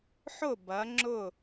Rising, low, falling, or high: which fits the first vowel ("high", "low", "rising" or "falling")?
falling